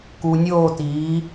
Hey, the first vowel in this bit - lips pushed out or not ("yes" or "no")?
yes